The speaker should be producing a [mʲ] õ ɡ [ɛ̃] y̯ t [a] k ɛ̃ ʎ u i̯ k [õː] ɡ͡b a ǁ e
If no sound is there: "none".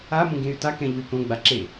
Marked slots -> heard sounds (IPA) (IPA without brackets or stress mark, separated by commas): m, ẽ, a, õ